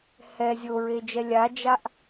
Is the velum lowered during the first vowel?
no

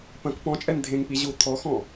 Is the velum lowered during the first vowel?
yes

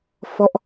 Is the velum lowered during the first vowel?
no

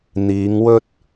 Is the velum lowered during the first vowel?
no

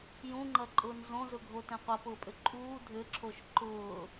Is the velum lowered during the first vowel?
yes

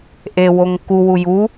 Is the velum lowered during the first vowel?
no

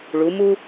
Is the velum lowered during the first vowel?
no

